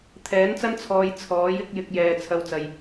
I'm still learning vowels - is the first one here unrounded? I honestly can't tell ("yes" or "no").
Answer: yes